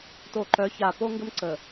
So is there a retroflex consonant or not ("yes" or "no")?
no